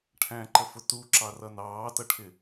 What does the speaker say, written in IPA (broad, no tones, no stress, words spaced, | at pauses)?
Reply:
ʈʰæ̃ǃəfʊ tuǁɑrʌ nɑːtʌʈʰɪ